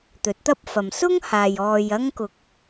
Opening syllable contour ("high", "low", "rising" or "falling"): rising